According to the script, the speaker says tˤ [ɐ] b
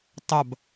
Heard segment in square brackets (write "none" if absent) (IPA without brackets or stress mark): ɐ